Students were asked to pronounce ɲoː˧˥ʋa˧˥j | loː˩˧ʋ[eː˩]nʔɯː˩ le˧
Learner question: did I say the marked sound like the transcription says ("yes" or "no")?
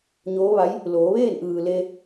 no